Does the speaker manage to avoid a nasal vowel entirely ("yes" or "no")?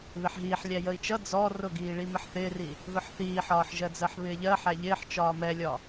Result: yes